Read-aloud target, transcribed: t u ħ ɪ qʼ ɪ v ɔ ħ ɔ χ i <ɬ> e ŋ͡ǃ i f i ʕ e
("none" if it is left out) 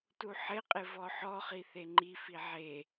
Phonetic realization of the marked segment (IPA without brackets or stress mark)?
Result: θ